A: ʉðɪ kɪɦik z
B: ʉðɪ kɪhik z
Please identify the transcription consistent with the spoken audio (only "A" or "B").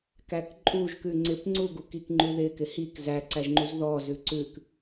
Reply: B